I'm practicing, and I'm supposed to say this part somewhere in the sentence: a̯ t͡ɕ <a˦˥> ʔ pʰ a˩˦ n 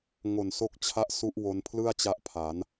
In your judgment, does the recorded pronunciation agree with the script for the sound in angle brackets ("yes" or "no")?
yes